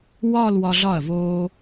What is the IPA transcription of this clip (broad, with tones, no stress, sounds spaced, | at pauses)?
w ɒː˥˧ l w ɒ˧ ɮ ɒ˧˩ ɐ̯ v oː˧